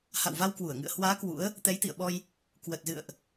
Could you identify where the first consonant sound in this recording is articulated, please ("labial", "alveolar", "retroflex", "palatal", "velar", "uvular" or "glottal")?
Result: glottal